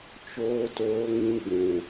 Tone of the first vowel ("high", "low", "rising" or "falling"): high